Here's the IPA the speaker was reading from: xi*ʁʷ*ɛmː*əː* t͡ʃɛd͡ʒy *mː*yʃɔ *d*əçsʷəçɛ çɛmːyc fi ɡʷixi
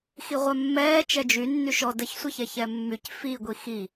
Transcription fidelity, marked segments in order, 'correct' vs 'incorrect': correct, incorrect: ɛː, incorrect: nː, correct

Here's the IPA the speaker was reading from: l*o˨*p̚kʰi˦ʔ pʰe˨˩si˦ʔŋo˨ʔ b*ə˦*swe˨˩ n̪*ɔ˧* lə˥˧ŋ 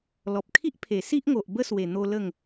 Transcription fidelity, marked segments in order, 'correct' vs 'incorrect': incorrect: ɔ˨, correct, incorrect: o˧

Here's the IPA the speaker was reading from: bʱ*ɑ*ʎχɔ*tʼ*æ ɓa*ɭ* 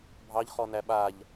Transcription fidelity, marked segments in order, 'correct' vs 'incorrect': correct, incorrect: n, incorrect: ʎ

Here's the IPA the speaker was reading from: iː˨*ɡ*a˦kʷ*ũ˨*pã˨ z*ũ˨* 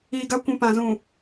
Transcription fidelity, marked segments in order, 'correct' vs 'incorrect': correct, correct, correct

